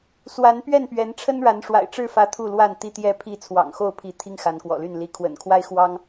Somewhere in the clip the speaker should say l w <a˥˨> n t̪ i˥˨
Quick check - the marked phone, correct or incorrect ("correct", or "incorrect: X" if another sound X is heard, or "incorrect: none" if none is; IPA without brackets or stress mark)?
correct